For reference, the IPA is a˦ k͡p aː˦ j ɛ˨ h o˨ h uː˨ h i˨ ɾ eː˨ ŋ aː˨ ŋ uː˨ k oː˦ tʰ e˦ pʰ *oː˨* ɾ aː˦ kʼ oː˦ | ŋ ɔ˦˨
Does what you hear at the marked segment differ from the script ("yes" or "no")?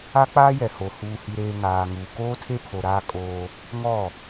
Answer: yes